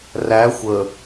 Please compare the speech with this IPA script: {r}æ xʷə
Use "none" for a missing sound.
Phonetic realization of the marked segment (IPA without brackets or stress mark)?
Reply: r